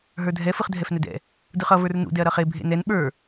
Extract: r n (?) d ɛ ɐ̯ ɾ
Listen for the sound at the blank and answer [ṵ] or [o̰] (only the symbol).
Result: ṵ